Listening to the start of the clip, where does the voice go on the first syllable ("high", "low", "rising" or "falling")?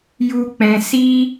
high